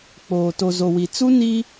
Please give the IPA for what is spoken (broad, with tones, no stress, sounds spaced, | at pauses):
k͡p oː˨ t o˨ z o˨ w i˨ t͡s u˦ n i˦